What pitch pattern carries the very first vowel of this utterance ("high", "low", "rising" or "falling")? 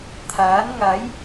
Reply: rising